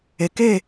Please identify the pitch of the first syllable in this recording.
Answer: low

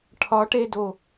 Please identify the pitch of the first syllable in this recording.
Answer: rising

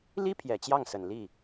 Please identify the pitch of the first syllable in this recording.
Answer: high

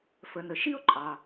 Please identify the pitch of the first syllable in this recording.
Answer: low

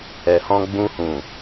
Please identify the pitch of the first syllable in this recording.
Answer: low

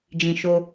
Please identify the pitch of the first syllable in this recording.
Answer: low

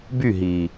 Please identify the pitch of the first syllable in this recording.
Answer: falling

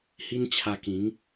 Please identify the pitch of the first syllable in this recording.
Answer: high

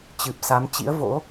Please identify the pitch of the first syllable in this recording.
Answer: low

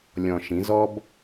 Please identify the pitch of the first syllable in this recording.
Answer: low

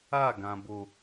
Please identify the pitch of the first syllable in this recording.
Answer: falling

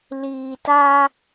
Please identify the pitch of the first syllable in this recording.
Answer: low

